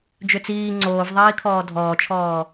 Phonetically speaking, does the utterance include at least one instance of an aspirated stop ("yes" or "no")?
yes